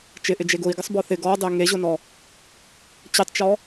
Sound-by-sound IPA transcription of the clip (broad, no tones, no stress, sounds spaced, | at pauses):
t͡ʃ ɪ ʔ ɪ d͡ʒ e ɡ ʊ i̯ ɡ ɪ sˤ b ɔ θ ɪ ɡ ɔ dˤ e ŋ e ʑ ʊ n ɔ | t͡ɕ ɪ tˤ t͡ʃ ɔ